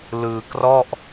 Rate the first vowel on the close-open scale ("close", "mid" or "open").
close